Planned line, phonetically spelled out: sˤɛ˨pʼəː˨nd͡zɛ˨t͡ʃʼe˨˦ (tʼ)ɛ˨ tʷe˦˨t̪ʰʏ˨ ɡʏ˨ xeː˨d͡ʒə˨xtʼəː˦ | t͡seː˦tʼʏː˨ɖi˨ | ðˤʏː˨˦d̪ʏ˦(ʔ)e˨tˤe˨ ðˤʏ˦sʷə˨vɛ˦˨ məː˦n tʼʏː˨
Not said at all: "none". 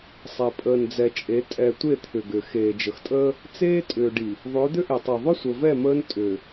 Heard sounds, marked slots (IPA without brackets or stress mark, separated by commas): tʼ, ʔ